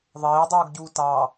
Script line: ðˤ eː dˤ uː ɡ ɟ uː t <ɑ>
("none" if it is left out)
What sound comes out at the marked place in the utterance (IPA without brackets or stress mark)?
ɑ